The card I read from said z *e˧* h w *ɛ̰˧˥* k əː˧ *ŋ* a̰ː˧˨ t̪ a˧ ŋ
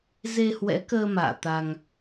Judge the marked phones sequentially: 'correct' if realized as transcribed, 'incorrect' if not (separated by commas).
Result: correct, correct, incorrect